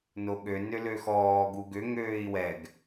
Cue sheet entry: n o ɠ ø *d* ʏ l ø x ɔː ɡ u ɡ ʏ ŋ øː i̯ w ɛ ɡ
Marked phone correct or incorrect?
incorrect